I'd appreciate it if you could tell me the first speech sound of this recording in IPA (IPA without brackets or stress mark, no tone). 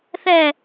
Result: θ